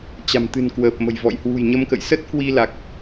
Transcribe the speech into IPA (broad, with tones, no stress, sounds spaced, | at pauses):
t͡ɕ a̤˨˩ m t̪ ɨ̤˨˩ n k w əː˨˩ p̚ m ə̤˨˩ j v ɔ̰˧˨ j h w ṳ˨˩ j ɲ ə˧ m k ə̰˧˨ j s ə˦˥ t̚ k w i˧ l a˨˩ k̚